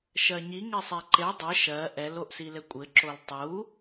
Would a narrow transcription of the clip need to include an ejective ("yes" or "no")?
yes